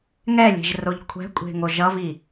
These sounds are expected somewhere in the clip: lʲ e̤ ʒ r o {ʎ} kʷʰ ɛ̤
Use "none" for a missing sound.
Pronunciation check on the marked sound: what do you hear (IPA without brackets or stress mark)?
ʎ